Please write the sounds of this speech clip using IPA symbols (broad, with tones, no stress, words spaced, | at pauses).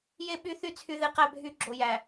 je˦ ɓy˦θy˦ t͡sʰy˨ðe˨ qæ˦bʱy˦ɡ͡ǁo˨ jæ˨